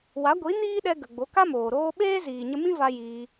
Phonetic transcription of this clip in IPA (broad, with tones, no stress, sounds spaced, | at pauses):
w a˨˦ ɡʷ i˨˦ n iː˦ ɗ ɛ˧ ɡ ə˨ ɡ͡b o˨˦ k a˦ m oː˨ ɾ oː˧ ɓ eː˦ z iː˨ ɲ ə˧ m ĩ˦ v a˧ j iː˧